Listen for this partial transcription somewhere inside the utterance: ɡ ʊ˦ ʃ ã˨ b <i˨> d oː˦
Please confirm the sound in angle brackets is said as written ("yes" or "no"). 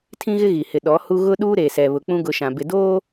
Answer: no